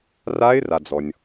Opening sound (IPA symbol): r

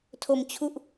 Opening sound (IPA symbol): tʰ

